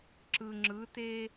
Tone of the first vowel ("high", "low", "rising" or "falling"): low